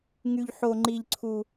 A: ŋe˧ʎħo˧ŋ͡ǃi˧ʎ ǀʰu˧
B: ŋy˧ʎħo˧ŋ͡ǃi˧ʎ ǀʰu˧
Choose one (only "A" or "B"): B